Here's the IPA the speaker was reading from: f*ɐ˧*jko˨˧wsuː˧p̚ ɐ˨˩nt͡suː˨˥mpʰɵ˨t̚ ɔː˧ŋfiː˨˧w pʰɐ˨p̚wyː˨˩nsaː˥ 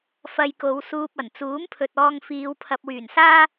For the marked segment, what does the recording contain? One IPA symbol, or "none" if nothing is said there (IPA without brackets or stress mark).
ɐ˧